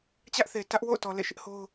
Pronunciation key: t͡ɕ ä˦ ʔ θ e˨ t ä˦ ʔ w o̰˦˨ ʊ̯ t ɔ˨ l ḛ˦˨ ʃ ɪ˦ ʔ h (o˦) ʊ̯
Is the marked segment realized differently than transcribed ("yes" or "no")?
no